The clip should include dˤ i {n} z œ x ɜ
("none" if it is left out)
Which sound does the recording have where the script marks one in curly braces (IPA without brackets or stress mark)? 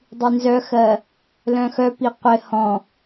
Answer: n